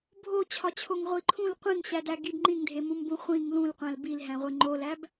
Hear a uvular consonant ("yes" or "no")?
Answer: yes